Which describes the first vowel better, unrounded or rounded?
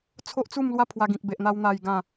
rounded